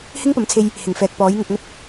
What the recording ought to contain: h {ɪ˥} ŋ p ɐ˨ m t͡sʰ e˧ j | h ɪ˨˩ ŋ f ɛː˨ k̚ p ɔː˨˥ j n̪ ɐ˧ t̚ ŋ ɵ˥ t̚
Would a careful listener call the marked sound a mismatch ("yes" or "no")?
no